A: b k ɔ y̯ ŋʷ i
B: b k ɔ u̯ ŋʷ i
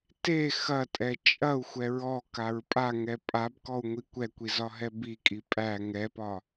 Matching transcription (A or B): B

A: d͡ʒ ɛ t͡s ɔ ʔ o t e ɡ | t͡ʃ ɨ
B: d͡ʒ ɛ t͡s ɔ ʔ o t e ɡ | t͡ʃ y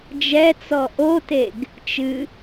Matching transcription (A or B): A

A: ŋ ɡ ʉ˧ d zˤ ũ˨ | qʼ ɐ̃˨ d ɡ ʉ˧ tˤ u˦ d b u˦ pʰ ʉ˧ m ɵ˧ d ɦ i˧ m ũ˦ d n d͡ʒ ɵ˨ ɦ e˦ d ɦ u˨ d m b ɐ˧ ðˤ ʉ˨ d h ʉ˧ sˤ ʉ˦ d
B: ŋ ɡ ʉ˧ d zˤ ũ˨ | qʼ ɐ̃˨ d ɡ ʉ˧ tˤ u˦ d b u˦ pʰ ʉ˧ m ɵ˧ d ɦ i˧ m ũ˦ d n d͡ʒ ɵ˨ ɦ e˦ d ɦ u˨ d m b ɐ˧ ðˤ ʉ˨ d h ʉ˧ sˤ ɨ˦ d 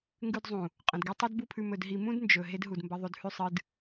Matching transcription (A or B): B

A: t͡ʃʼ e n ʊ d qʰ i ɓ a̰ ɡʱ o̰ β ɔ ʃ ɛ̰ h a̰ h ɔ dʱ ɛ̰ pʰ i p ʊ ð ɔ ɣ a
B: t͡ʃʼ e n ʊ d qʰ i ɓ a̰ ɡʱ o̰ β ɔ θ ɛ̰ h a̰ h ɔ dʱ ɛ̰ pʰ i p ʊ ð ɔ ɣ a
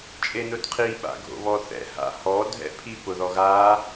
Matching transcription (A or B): B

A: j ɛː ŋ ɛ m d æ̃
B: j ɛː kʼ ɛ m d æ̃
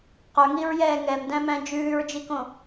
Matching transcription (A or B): A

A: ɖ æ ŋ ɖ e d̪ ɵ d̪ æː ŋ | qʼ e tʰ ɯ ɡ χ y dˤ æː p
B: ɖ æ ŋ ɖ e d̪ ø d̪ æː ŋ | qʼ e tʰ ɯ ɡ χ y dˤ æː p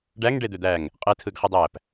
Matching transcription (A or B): B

